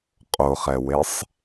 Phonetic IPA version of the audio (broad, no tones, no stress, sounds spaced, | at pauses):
qʼ o χ ɛ w e sˤ